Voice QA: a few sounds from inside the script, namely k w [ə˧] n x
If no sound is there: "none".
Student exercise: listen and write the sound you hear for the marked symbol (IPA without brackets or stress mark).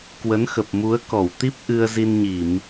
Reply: ə˨˦